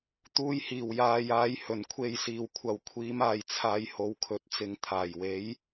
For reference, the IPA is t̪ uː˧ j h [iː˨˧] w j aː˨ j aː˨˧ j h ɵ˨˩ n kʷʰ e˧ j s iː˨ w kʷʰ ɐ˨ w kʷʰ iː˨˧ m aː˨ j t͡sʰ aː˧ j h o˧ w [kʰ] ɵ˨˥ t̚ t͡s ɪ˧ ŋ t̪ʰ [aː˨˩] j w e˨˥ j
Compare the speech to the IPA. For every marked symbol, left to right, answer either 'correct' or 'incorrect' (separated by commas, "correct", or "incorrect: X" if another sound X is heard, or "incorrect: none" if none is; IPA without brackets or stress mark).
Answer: incorrect: iː˨˩, correct, correct